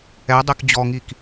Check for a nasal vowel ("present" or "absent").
absent